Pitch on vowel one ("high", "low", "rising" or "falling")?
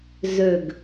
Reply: falling